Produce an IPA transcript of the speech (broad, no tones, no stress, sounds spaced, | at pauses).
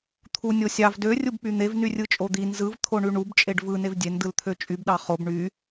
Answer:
t̪ʰ u nʲ o sʲ ɑ v d ø rʲ u b k͡p y n̪ e v n y rʲ ɯ t͡ʃʼ o d̪ i n z ɯ v t̪ʰ o ɳ y ɳ u b t͡ʃʼ e ɖ v ɯ n e v dʲ e n d ɯ l t̪ʰ ø t͡ʃʼ y b ɗ ɑ χ o b ɳ y